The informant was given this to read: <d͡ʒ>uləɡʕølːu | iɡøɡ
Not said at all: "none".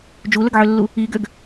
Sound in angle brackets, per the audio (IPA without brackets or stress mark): d͡ʒ